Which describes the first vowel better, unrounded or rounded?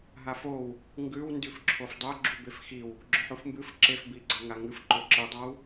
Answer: unrounded